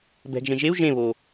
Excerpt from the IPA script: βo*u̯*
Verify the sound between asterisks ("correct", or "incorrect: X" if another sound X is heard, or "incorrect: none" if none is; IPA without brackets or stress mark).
incorrect: none